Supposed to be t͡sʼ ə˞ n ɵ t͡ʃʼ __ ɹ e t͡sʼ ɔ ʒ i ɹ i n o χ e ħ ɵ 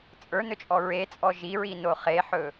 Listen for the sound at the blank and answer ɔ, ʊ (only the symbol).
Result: ɔ